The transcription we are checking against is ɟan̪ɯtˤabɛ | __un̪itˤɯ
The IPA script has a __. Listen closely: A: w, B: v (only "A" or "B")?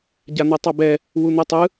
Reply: A